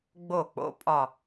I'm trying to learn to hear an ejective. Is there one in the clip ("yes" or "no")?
yes